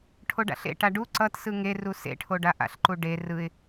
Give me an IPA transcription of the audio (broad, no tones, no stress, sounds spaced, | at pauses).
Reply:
ʈʰ o ɖ a̰ ɬ ḛ ʈ a ɖ u ǀ ʌ t s ɯ ŋ e r u s ḛ ʈʰ o ɖ a ʔ a̰ ɬ ǃ u ɖ e r ɯ ɪ̯